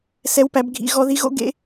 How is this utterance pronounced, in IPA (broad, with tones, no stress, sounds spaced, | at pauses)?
s ɛ˦˥ w p æ˨˥ b ɡʱ ḭ˦˥ ɣ ɔ˦˥ ð i˦˥ ɣ o̰˦˥ ɡ ḛ˦˥